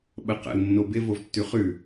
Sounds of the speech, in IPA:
ɓ ə q ə̰ l nː o b ɪ v o v tː ʉ χ ʉ

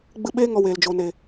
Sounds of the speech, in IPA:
ɡ͡b ɨ˧ ɓ eː˦ ŋ ɔ˧ w eː˨ l d͡ʒ o˨ n e˨

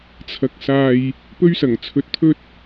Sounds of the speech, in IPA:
t͡sʰ ɐ˨ k̚ s aː˨ j | p ɵ˧ ɥ s ɐ˨˩ ŋ t͡sʰ ɵ˨ t̚ t̪ʰ ɵ˧ t̚

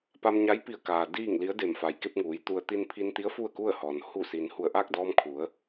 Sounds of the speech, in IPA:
p a˧ m ɲ a˧˥ j p i˧˩ ə̯ k aː˩ d iː˥˨ ŋ l i˧˥ ə̯ d e˧˩ m f a˩ j k e˧ p̚ ŋ uː˩˧ j t̪ u˧ ə̯ t̪ i˧ n pʰ i˧ n t̪ i˧˥ ə̯ f u˥˨ ə̯ k u˥˨ ə̯ h ɔː˩ n h u˧˩ s iː˩ n h u˧˩ ə̯ ʔ a˥˨ k̚ d ɔː˧ m kʰ u˩˧ ə̯

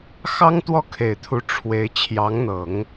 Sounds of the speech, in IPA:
x ɑ˥ ŋ t̪ w ɔ˥˩ kʰ e˨˩ ɪ̯ t̪ʰ u˧˥ ʈ͡ʂʰ w e˧˥ ɪ̯ t͡ɕʰ j ɑ˧˥ ŋ n̪ ɤ˨˩˦ ŋ

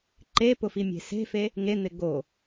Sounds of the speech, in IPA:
ǃ e p ʊ f i mʲ e̤ s e̤ f e | ŋ e n̪ ɪ ɡ o

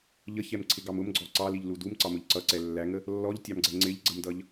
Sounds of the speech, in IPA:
ʎ ə ç ɛ m ǀʰ ɪ ɡ ɑ m ʊ m ɡ͡ǀ ɔ ǀ ɑ l i ʎ l u d u m ǀ ɑ m ʊ ʎ ǀ ʌ ǀ ɛ lː æ ŋ ə | lː ɔ ʎ tʲ ɑ m ɡ͡ǀ ɛ ŋ͡ǀ ɪ ʎ ɡ͡ǀ ə m d ʌ ʎ

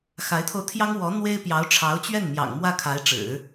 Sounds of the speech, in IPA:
x a˧˥ ɪ̯ t̪ʰ o˧ ʊ̯ t̪ʰ j ɑ˥ ŋ w ɔ˧˥ n̪ w e˥ ɪ̯ p j ɑ˧˥ ʊ̯ ʈ͡ʂʰ ɑ˧˥ ʊ̯ t͡ɕ ɥ ɛ˥˩ n m j ɑ̰˨˩ ŋ m w ä˥˩ kʰ a˧˥ ɪ̯ ʈ͡ʂ ɻ̩˨˩˦

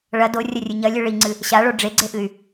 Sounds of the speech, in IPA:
ɭ ɐ d o rʲ ɐ rʲ ɨ ɲ ɐ lʲ ɨ ɭ i ŋ͡ǀ ɨ | ɕ a ɭ o ɖ͡ʐ e ɡ͡ǀ e ʔ ɨ y̯

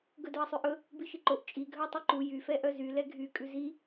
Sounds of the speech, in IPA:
ɡ ɵ d œ ɐ̯ sˤ ʉ ʔ ɵ | b i ʃ i ǃ o ʔ t͡ʃʼ i ɡʱ œ ɐ̯ tˤ u ǃ u j y f ɛ ʔ œ z y l ɛ ɡʱ y kʼ ʉ z i

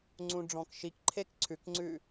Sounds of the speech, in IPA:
ŋ͡ǀ ũ ɖ͡ʐ ɔ̃ k ʃ i k ǃʰ e k ǀʰ ʉ k ŋ͡ǀ ʉ

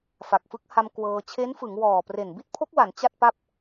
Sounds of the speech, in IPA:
f a˨˩ k̚ f ɯ˦˥ k̚ h a˧ m k w ɤː˧ t͡ɕʰ e˦˥ n f ɯ˩˦ ŋ w ɔː˨˩ p r e˨˩ n b i˥˩ t̚ pʰ o˦˥ k̚ w a˩˦ n t͡ɕ a˥˩ t̚ p a˥˩ p̚

